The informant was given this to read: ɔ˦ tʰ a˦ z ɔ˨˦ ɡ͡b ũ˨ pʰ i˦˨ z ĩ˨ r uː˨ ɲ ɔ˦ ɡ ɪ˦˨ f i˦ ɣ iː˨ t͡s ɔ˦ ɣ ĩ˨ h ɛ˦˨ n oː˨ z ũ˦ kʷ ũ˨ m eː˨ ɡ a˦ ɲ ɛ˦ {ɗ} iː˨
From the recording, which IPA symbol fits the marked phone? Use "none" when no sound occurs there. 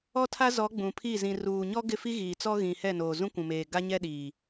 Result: ɗ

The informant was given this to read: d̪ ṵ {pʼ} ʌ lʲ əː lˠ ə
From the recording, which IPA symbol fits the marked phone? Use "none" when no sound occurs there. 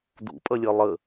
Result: pʼ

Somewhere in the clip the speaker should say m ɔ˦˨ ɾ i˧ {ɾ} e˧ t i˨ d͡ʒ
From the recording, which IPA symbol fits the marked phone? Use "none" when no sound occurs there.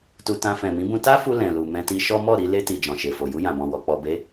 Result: l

